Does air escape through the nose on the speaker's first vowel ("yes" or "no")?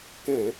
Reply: yes